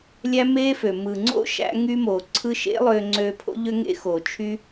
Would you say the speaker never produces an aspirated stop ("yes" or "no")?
no